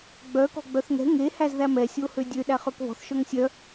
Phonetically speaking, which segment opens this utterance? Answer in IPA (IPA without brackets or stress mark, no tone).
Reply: ɡ͡b